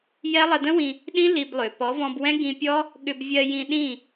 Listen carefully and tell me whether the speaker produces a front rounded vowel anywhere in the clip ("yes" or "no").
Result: yes